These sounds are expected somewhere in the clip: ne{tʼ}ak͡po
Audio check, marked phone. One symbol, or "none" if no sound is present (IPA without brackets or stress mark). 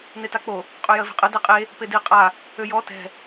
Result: t